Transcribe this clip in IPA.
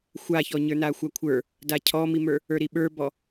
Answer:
xʷ a ç ɔ ɲ ə˞ n a xʷ a kʷʰ ə˞ | d a cʰ ɔ m i m ə˞ | ə˞ ɾ i ɓ ə˞ b ɔ

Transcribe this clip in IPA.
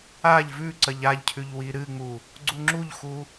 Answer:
a ʎ v ʉ ǀ ɐ ʎ a ʎ cʰ ʉ ʎ w i ɾ ɨ ŋ͡m u | ɡ͡ǀ u ŋ͡ǁ u ʎ x u

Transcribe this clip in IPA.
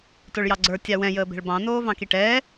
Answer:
t o ɭ j ɑ ɡ͡ǀ ə˞ tʲ ɑ w ɛ̃ j əː b ɛ̤ ɭ b ɑ̃ n oː v ɑ̃ k i ʈ ɛː

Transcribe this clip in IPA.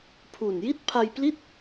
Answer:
pʰ u˨˩ n j i˥˩ t̚ pʰ a˧ j p l i˥˩ t̚

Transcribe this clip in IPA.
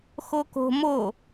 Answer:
x o k o̤ m o

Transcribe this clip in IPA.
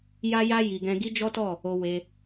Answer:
j a˦ j a˦ j i˧ ɡ ɛ̃˧ ɡ i˦ d͡ʒ ɔ˦ t ɔ˦˨ | o˧ w e˧

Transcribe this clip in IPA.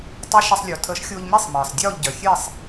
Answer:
tˤ a˦˥ ʃ ə˧ sˤ lʲ o˩ tʰ ə˨˩˦ ʃ xʲ o˧ ʎ m i˥˨ sˤ m əː˩ sˤ dʲ ɔː˥˨ ʎ ɟ œ˩ xʲ e˥˨ sˤ

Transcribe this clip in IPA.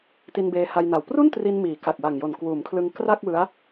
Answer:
t i˧ n b eː˧ h a˧ j n a˨˩ w p r u˥˩ n t r i˧ n m iː˩˦ k a˨˩ k̚ w a˨˩ ŋ j o˨˩ n k w uː˩˦ m kʰ l ɯ˧ ŋ k r a˥˩ k̚ w ɯ˦˥ a̯

